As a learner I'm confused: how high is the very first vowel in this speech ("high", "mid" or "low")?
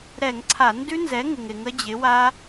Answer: mid